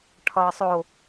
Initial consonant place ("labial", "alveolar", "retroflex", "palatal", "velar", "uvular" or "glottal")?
retroflex